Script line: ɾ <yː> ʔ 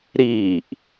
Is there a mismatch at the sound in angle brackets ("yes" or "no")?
yes